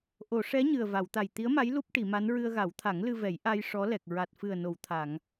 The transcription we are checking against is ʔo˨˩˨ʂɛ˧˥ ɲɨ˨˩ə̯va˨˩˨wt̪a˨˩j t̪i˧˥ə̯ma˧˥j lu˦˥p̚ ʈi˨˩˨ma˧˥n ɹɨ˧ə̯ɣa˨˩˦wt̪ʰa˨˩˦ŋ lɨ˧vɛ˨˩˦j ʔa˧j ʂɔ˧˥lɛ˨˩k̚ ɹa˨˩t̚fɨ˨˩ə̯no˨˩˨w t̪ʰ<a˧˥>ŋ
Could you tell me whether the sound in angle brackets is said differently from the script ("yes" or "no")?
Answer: yes